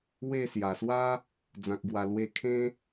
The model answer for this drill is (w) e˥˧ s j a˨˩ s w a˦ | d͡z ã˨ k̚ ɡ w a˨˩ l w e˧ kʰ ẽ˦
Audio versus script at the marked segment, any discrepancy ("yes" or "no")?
no